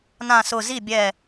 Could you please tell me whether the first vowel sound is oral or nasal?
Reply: nasal